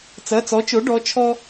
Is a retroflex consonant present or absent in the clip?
present